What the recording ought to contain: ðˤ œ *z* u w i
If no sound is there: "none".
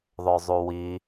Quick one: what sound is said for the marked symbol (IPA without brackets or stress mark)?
zˤ